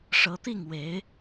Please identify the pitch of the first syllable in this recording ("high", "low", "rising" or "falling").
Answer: rising